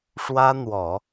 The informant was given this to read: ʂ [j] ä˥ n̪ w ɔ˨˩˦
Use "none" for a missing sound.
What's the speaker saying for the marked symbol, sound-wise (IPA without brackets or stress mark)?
w